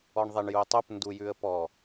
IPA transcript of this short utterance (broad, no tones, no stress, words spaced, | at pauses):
ɔɳðˤeɳjutˤup ndujʉə̯pɔ